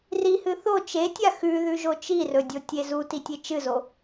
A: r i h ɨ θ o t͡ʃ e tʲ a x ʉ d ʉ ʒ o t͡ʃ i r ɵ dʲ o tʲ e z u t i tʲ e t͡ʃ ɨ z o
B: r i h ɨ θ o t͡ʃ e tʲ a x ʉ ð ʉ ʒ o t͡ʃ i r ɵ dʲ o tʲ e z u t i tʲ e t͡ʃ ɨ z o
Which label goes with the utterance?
B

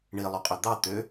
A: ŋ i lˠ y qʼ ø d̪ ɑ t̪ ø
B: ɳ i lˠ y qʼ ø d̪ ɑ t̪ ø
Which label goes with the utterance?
B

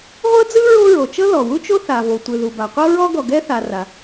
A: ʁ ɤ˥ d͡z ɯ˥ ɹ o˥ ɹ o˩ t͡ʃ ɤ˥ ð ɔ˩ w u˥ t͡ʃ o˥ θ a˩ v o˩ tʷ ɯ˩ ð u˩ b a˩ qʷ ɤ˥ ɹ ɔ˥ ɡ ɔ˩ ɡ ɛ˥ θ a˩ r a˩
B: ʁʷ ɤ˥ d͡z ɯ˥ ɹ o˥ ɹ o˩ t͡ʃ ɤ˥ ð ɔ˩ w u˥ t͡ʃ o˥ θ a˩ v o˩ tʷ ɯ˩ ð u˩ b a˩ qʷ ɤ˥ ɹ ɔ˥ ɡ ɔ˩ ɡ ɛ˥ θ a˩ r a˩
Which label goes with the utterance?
B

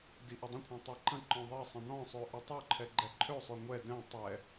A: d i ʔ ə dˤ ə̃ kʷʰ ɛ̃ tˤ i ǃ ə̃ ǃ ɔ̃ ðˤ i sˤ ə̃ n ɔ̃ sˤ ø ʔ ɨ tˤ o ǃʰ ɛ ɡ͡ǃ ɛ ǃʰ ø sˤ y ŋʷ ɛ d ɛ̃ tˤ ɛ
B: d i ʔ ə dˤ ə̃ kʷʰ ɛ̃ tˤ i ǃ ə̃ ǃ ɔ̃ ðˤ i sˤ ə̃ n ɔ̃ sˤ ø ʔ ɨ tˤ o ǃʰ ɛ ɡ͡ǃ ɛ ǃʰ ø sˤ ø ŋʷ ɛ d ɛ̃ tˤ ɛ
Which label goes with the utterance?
B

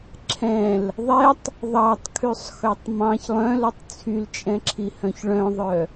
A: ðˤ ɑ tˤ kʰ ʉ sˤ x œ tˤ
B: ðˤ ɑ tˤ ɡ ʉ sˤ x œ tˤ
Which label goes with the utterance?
A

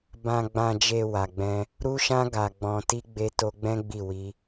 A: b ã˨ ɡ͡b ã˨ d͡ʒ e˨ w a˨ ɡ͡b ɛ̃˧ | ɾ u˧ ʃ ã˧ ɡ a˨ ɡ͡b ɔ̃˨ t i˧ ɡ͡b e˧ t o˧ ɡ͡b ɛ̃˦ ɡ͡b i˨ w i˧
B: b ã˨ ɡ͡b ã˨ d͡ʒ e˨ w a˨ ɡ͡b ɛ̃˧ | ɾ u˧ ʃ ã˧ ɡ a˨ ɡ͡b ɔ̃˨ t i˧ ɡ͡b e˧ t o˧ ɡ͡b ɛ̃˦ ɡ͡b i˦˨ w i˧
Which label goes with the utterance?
B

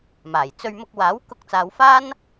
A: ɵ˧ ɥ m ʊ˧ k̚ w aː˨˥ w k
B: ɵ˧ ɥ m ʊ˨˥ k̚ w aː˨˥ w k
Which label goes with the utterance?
A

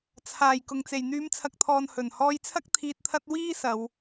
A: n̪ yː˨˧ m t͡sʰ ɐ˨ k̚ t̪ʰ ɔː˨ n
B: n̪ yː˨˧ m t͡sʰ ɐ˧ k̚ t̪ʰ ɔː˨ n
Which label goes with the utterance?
A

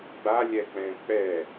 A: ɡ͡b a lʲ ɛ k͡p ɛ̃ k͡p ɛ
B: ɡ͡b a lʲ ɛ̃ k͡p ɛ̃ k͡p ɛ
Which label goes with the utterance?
A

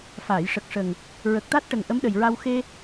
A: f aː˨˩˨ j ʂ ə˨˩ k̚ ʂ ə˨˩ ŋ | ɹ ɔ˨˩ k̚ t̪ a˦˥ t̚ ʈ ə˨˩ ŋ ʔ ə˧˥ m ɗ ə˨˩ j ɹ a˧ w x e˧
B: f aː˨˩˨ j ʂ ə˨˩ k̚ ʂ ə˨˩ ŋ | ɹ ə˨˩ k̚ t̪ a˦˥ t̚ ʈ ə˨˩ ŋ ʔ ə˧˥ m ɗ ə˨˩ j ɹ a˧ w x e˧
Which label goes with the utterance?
B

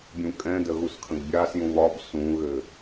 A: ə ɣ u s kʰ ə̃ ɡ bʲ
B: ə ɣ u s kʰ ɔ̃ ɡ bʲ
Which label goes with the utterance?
A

